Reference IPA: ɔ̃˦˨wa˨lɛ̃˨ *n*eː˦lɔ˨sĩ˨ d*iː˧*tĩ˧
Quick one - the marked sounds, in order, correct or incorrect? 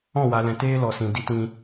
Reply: incorrect: t, incorrect: i˧

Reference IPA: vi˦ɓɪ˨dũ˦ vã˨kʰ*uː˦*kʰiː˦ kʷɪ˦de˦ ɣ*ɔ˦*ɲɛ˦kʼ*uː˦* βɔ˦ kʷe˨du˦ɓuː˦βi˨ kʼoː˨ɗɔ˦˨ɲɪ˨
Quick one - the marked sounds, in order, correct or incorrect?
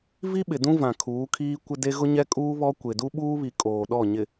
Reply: incorrect: uː˨˦, incorrect: ʊ˦, correct

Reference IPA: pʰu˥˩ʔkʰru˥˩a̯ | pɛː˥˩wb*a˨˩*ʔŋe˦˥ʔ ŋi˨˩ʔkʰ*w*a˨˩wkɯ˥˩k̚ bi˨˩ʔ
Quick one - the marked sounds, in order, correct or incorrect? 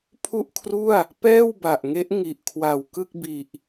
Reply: correct, correct

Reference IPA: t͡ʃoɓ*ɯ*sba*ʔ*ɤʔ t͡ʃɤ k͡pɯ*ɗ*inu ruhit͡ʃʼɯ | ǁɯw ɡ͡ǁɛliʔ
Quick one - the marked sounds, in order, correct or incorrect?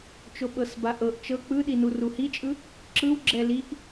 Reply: incorrect: ɤ, correct, correct

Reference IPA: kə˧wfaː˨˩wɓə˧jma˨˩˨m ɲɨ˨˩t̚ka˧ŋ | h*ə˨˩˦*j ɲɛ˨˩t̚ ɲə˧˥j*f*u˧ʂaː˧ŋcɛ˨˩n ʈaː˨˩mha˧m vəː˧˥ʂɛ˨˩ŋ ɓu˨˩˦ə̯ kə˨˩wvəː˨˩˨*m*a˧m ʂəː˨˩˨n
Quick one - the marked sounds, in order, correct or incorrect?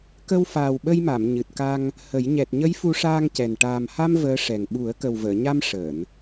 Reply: correct, correct, incorrect: ɲ

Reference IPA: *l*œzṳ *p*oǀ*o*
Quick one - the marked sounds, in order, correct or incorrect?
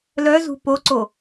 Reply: correct, correct, correct

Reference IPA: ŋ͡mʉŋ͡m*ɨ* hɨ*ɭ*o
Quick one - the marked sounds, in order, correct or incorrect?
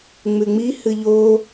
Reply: incorrect: i, incorrect: ʎ

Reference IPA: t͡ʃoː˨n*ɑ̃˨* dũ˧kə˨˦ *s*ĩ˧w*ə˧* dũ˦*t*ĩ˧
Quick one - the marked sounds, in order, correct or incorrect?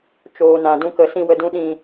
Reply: incorrect: ã˨, correct, correct, incorrect: ɗ

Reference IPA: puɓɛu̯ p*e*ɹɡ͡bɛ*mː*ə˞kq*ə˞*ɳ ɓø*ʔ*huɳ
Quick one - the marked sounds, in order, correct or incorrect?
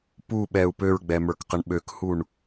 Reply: incorrect: ø, incorrect: m, incorrect: ə, incorrect: k

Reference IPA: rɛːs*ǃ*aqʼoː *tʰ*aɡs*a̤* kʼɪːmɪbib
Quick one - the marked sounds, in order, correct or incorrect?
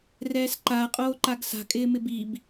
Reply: correct, incorrect: ǃ, correct

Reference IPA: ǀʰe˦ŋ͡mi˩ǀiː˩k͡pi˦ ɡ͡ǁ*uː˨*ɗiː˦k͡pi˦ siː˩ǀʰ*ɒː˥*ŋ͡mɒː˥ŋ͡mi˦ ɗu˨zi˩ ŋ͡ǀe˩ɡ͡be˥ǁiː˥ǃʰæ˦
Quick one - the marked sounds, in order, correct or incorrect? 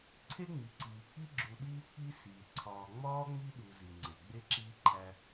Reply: incorrect: u˨, incorrect: ɒː˨

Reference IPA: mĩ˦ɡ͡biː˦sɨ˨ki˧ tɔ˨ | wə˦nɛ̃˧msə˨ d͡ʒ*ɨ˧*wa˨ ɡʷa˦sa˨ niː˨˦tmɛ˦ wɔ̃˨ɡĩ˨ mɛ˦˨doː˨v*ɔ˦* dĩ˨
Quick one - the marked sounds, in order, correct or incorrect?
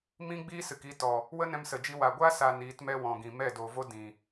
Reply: incorrect: i˧, incorrect: o˦

